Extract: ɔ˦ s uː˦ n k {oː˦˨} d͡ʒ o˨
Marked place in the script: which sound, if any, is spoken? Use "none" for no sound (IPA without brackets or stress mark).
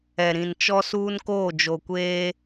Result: oː˦˨